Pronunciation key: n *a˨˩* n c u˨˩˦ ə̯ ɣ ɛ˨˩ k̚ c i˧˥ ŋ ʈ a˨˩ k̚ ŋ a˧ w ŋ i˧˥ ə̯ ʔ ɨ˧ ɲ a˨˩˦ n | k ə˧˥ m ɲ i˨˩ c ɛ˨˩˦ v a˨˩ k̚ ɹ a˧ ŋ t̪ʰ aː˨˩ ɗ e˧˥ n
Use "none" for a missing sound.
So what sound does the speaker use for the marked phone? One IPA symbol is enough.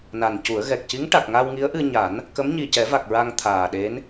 a˨˩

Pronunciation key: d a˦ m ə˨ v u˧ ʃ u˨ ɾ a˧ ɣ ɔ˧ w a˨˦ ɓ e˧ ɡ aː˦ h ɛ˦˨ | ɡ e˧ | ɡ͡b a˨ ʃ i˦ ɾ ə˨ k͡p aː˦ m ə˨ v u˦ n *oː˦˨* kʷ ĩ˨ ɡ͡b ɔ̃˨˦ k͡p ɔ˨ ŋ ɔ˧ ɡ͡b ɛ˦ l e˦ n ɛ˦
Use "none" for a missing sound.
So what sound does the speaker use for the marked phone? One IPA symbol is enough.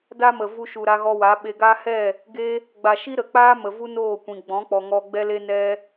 oː˦˨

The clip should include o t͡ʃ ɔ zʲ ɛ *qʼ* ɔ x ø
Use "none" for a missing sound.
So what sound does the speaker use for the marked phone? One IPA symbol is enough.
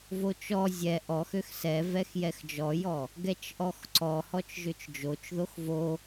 ʔ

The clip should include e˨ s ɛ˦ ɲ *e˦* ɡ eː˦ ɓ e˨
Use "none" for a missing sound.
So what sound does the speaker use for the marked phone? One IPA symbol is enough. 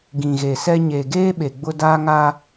e˨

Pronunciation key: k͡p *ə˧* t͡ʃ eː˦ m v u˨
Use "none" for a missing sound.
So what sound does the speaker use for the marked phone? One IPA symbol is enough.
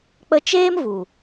ə˧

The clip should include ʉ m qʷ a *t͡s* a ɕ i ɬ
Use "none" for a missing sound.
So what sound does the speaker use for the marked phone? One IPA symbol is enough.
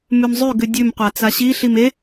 t͡s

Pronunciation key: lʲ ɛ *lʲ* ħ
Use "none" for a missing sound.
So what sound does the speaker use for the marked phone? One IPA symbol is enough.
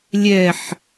none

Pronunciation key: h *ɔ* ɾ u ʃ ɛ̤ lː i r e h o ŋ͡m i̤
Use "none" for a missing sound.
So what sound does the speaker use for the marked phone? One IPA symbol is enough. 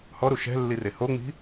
ɔ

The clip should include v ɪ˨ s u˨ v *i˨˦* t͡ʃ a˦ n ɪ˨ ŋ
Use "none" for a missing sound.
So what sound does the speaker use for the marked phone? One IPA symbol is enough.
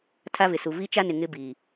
i˦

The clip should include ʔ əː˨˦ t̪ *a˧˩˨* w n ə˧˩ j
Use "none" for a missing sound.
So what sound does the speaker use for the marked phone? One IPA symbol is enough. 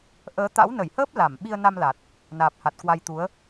a̰˧˥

